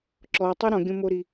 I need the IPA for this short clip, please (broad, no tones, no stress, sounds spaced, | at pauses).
ǁ ɔ tˤ ɨ ɾ ɔ̃ ɡʲ õ m o ɾ i